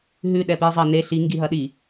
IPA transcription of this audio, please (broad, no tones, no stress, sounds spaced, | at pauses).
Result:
ɦ ʉ ɗ ɛ p i zˤ ɐ n e ɬ i ŋ ɡ i ɦ ɐ ɗ i